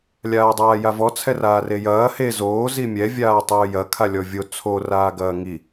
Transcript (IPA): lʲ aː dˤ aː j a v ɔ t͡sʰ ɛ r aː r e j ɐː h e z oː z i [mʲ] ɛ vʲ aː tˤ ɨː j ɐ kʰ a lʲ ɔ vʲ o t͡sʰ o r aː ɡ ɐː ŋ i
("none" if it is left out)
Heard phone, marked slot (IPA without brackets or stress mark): mʲ